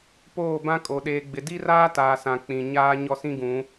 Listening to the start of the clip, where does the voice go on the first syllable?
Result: falling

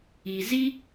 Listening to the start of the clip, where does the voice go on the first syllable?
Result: low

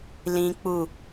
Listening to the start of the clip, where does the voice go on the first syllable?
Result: high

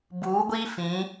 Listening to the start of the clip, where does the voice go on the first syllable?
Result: rising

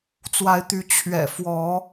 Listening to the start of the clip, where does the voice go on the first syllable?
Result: rising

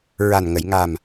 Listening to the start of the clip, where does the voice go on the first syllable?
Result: low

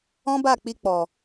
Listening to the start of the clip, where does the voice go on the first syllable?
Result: high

